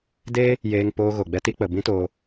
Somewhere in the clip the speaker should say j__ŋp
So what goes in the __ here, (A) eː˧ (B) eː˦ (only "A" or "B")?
A